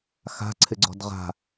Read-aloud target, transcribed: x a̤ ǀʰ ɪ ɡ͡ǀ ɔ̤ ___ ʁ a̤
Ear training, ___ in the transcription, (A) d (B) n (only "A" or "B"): A